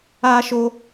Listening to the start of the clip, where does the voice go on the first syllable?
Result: high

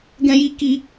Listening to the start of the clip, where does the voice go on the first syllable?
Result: high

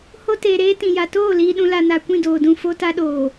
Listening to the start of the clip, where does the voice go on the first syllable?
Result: high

